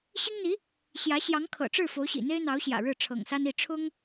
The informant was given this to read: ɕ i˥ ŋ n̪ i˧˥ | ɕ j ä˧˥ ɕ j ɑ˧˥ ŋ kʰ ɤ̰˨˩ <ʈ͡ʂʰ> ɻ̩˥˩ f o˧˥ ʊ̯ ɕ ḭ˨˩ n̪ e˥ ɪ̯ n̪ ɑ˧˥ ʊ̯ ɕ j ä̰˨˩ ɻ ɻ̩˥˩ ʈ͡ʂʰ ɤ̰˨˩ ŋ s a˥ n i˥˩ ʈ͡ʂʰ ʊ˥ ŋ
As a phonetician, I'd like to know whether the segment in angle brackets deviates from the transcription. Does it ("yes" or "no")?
yes